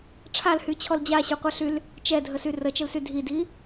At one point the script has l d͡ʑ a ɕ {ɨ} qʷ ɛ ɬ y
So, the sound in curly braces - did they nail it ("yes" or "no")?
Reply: no